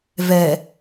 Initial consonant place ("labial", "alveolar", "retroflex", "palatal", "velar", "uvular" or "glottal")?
labial